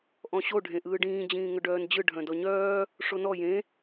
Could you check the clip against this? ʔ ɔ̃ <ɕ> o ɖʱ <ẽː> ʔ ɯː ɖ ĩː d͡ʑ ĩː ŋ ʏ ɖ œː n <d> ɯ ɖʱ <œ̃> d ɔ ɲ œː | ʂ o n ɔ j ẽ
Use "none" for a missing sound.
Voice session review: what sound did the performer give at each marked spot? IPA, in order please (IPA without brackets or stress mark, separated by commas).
ɕ, ẽ, d͡ʑ, œ̃